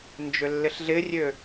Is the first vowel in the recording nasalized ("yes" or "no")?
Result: no